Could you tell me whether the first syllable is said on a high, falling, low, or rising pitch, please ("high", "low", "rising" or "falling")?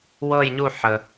falling